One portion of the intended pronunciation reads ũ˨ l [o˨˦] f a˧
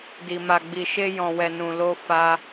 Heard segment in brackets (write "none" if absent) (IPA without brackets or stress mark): o˧